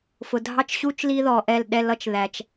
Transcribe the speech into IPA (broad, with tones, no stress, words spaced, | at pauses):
fʊ˨ dʱɑ˦t͡ʃɕu˦t͡ʃ li˦ðɔ˨ʔɛ˦˨l ɗɛ˦lʌ˦t͡ʃ ðæ˨t͡ʃ